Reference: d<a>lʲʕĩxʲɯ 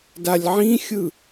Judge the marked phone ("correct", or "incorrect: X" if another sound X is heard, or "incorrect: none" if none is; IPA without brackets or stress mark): correct